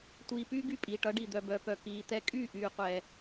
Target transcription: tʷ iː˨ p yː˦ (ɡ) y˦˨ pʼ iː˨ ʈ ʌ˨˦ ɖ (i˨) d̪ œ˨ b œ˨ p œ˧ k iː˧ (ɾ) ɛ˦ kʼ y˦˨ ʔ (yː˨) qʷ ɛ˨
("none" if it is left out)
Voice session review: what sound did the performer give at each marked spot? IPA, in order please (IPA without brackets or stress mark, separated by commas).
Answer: ɡ, i˨, t̪, yː˨